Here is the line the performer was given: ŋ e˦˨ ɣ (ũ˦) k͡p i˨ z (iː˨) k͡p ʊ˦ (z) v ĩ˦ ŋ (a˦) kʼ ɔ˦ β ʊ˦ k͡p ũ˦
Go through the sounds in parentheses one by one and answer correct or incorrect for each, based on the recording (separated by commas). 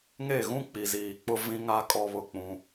correct, correct, incorrect, correct